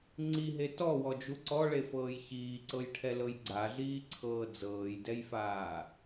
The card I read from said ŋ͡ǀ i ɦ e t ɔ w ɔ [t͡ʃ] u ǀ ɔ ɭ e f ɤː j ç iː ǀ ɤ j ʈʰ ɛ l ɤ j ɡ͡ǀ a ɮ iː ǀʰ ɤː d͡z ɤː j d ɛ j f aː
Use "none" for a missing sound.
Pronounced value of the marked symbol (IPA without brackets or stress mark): d͡ʒ